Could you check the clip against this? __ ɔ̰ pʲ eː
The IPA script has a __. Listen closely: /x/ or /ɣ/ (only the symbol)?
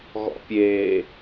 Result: ɣ